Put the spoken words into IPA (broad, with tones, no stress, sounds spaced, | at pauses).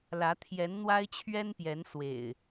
l ä˨˦ t̪ʰ j ɛ˨˦ n n̪ w a˦ ɪ̯ t͡ɕʰ ɥ ɛ˦ n p j ɛ˨˦ n s w ḛ˨˩ ɪ̯